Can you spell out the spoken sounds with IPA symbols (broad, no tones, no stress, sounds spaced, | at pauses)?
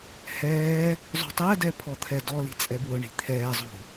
h ɛː | zˤ ṳ tˤ ɛ d ɛ pʰ ɔ t̪ʰ ɛ d ɔ l i̤ t͡sʼ ɛ b w ʊ ɳ i̤ t̪ʰ ɛː zˤ ṳ